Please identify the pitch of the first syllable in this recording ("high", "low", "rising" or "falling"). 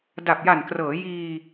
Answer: low